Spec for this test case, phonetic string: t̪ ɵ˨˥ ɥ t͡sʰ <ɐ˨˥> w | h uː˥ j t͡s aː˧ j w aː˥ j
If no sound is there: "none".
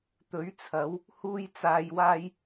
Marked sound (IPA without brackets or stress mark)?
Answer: ɐ˨˥